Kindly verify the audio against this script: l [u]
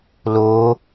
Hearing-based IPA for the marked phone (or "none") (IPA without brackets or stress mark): o